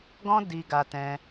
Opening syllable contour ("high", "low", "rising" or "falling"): high